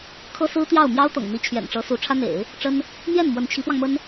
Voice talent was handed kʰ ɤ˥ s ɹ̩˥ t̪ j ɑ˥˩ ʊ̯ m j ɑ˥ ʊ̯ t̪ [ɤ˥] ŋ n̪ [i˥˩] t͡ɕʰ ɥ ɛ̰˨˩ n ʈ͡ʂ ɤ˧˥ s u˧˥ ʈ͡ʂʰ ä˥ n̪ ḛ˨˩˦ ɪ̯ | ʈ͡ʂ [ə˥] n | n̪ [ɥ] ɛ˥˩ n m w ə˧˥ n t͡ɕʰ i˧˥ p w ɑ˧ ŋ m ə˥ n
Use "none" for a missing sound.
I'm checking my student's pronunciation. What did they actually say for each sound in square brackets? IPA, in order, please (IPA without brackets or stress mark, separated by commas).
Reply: ɤ̰˨˩, i˧˥, ə˥, j